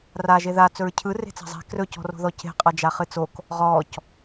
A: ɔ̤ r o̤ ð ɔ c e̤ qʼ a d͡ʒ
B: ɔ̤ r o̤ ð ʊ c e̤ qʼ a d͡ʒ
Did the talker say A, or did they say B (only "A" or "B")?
A